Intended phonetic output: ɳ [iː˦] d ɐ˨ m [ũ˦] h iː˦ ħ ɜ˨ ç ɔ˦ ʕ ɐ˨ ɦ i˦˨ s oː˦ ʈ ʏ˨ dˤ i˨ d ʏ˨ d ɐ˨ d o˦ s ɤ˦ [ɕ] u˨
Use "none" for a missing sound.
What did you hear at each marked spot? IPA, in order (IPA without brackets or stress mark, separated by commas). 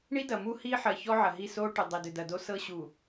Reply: i˦, u˦, ɕ